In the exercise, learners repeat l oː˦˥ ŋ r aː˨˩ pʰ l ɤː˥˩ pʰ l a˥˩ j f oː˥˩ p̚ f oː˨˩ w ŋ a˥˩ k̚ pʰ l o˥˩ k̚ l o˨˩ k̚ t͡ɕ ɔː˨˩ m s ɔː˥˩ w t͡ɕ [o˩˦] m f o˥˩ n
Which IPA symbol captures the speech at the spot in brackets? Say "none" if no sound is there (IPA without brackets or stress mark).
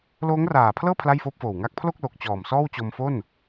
o˧